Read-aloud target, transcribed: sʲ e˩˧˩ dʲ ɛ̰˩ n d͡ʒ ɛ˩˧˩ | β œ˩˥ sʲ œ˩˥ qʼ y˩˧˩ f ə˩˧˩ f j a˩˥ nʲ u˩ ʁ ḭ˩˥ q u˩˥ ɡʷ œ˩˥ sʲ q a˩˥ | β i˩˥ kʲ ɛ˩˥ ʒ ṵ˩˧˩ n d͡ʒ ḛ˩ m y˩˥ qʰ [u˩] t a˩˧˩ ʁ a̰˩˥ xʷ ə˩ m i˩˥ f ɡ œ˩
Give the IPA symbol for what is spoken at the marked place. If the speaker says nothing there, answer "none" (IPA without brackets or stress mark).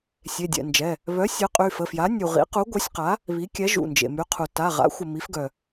u˩